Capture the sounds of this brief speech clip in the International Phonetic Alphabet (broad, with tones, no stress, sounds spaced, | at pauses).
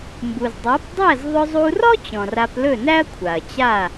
m b u˩ z dˤ a˩˥ p dˤ æ˥˩ z ðˤ ɵ˧ zˤ u˧ r ɔ˥ t͡ɕ ɔ̃˩ r a˧ p l ɵ˥˩ n æ˥ ɐ̯ kʷʰ a˩ ɐ̯ t͡ɕ a˥˩